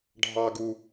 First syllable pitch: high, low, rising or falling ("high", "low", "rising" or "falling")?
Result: high